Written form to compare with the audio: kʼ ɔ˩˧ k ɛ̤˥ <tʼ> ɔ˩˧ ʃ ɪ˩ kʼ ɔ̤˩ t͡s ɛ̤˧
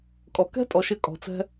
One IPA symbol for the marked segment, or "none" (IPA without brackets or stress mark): tʼ